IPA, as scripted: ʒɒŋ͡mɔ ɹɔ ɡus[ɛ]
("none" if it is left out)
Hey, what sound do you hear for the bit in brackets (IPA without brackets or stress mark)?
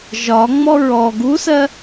ɜ